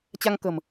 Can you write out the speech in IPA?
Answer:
t͡ɕ a˧ ŋ k ə̤˨˩ m

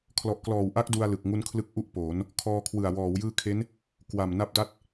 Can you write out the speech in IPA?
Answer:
kʰ l ɔ˨˩ ʔ k l ɔː˨˩ w ʔ a˦˥ k̚ d u˧ a̯ l ɯ˨˩ k̚ ŋ u˦˥ n kʰ l ɯ˦˥ k̚ ʔ u˥˩ ʔ p oː˩˦ n | kʰ ɔː˧ kʰ w ɯ˨˩ a̯ w ɔː˩˦ w j ɯː˦˥ kʰ e˦˥ n | k w a˨˩ m n a˦˥ p̚ d a˥˩ t̚

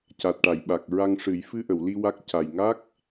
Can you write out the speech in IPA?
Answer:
c a˨˩ t̚ ʈ a˨˩˨ j ɓ a˨˩ k̚ ɹ a˧ ŋ ʂ ɨ˨˩˦ j f ɨ˧ ʔ ə˨˩˨ w l i˧ w a˦˥ k̚ c a˨˩ j ŋ a˦˥ k̚

